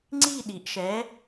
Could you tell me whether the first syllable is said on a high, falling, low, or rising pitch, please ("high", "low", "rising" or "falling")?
falling